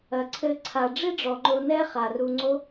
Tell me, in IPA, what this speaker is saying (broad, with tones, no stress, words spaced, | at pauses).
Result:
ɐ˩ǀʰɘ˨ ǀʰa˩ ɖ͡ʐi˦ɖ͡ʐɔ˩ŋ͡ǃo˨ nɛ˦χa˩ru˨ ŋ͡ǀo˦